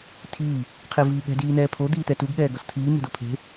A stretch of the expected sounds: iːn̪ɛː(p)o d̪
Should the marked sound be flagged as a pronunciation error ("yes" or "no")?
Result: yes